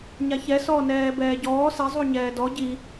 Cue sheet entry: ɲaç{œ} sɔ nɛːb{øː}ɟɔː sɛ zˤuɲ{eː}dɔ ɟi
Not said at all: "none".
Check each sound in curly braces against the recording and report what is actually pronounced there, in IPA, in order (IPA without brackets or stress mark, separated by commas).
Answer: ɛ, ɛː, ɛː